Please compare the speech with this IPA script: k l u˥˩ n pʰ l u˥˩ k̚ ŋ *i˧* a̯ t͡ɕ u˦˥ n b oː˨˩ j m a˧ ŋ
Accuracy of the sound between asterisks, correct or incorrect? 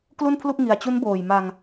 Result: correct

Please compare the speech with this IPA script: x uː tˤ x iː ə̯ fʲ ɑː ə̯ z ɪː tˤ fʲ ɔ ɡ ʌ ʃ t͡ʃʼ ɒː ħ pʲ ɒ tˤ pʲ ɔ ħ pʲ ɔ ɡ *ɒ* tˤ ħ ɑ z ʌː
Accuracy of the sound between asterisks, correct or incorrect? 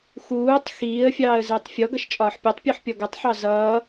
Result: incorrect: ʌ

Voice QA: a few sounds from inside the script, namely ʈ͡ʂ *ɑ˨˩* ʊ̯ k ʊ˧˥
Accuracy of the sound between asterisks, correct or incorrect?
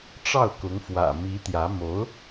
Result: incorrect: ɑ˥˩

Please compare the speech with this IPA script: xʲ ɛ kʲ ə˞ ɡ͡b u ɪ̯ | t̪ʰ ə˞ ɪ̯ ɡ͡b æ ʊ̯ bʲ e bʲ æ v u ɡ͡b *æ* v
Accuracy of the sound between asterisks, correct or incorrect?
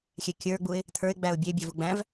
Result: incorrect: æ̃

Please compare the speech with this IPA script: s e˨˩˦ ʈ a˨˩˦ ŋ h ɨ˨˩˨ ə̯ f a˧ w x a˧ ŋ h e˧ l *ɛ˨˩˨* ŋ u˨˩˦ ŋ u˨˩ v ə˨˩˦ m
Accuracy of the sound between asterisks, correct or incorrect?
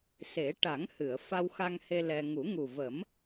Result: incorrect: ɛ˧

